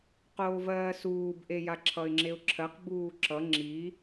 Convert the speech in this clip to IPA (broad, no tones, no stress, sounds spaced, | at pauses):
q oː v ɜː s uː b ʔ e j a ǁʰ ʌ ɪ̯ ŋ͡ǁ e ʊ̯ ǁʰ ɜ q b uː ǁ ʌ ŋ͡ǁ i